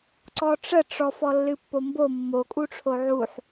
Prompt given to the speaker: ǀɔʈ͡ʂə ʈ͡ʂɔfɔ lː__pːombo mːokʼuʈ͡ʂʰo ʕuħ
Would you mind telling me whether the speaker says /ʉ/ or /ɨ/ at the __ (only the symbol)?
ɨ